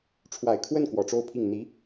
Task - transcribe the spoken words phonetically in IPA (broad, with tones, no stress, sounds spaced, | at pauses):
ʈ͡ʂʰ w a˨˩ ɪ̯ kʰ w ə˥˩ n k w ɔ˨˩ ʈ͡ʂ o˥˧ ʊ̯ pʰ i˥˩ ŋ n̪ i˧˥